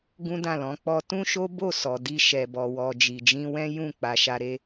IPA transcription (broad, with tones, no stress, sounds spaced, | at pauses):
ɡ ũ˦ d ã˦˨ l ɔ̃˨˦ k͡p ɔ˦ t ũ˦ ʃ o˦ b o˦˨ s ɔ˨ d i˧ ʃ ɛ˨ b ɔ˨ w ɔ˨ d͡ʒ i˨ d͡ʒ ĩ˧ w ɛ̃˦ j ũ˦˨ k͡p a˧ ʃ a˧ ɾ e˧